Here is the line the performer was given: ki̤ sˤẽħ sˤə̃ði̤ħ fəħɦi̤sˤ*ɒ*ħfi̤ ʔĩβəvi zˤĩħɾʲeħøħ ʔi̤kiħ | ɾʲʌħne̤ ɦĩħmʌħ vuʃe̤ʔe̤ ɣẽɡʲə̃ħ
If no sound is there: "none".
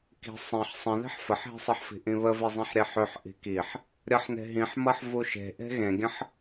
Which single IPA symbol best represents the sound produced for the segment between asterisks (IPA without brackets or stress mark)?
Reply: ʌ